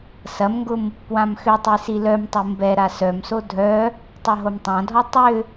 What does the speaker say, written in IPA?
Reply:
sɐmŋɡʊm | pwãmxʏtˤi silœmtˤu mbɛ ɾasœmso dʱœ | tˤœɦomtˤãdʱɔ tˤʏ

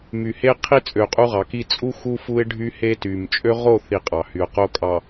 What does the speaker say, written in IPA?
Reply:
my˨he˦qʰi˦ t͡sʼø˨qʼu˦ʁɑ˨ki˦ t͡sʼu˦ xu˦fu˦ɪ̯ ɖʱy˦he˦ty˨m t͡ʃʼø˦ʁo˦˨θi˨ qʼɑ˨hy˨ʊ̯qo˦kʼɑ˨

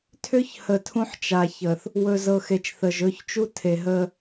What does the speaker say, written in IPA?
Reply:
tʰʏ˦ç hə˨tʰũ˦ħt͡ʃa˨çə˨θ | wɵ˨zɤ˨xe˨t͡ʃθə˨ʒ ɵ˦˨çt͡ʃu˦ tʰe˨ɦə˦

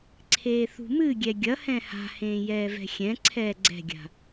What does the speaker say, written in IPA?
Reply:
ǀʰeːθṳmɨɡʲɛ ɡʲɐhɛ̃ ha̤hẽː jɛːvɛ̤xʲɛ̃ǀʰɛː ɡ͡ǀɛ̤ɡʲa̤

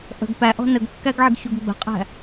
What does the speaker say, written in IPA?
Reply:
ʔə̤ɡ pæʔɔ̤ nəɡkːæɡʕɪɡçuɡ ɡ͡bə̤qʼæ̤

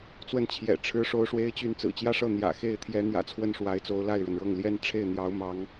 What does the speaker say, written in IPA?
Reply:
t͡swə˥˩nt͡ɕʰjɛ̰˨˩ ʈ͡ʂʰɻ̩˥ʂo˥ʊ̯ʂwe˥ɪ̯ t͡ɕy˥˩n t͡sɹ̩˨˩t͡ɕjä˥ʂɤ˥˩ n̪jä̰˨˩xe˥˩ɪ̯ t̪ʰjɛ˧˥n̪jä̰˨˩ t͡sʰwə˥˩nʂwa˧˥ɪ̯t͡so˧˥ʊ̯ la˥˩ɪ̯ɻə˩nɻɤ˥˩ŋ ljɛ˥nʈ͡ʂʰe˥˩ɪ̯n̪jɑ˧˥ʊ̯mɑ˧˥ŋ

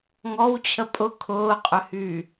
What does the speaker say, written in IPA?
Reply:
ŋɔw t͡ɕʰəpʼʊ kʰʊːqʼʏhyː

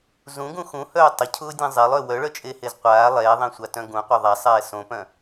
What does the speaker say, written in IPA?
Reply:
zũɡũ xũhœː tˤəcʰʊːdʲɐ̃ zˤelˠœ wœɭœt͡ʃʼehez qʷaː lˠɛːðˤẽsʷatœ̃ ɡũqʷœ ðˤasˤɛː sõpœ̃

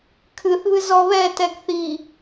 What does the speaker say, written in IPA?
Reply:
kʰɨθβɨ zɔβɛtɛɡ θi

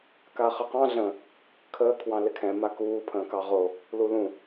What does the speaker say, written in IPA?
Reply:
kaχəqɑ̃ ɮə̃ | kʰəː kʰwɑ̃lɪkʰɛ̃ makuː pʰə̃ːkɑʁo | lulũ

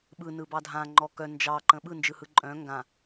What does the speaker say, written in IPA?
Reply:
ɓɯ nɯbɑdʱã ŋ͡ǃɔkœ nd͡ʒɑǃə̃ ɓɯnd͡ʒɯhɯ ǃʼœ̃ ŋɡã

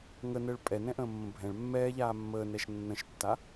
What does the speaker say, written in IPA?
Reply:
ŋənəːɭ pʼɛnɛ̃ʔə̃ːmːə̃ bʱɛ̃ɭ mːɛːʎaː mːəːnɛʃ nːə̃ʃtːa

